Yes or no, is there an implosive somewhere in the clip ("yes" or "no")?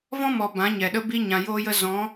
yes